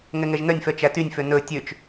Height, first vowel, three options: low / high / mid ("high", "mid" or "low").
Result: mid